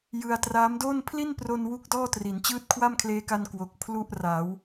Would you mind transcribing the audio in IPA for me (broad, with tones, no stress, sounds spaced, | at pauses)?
j ɯ˧ a̯ t r aː˦˥ m d oː˥˩ n pʰ l i˥˩ n p r o˧ n w u˥˩ k̚ d ɔː˥˩ t r i˩˦ n t͡ɕ ɯː˥˩ t̚ kʰ w a˥˩ m kʰ l eː˦˥ k a˧ n k w o˨˩ k̚ pʰ l u˥˩ ʔ r aː˩˦ w